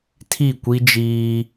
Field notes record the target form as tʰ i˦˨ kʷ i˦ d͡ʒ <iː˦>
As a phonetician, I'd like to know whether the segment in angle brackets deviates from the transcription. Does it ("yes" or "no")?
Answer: no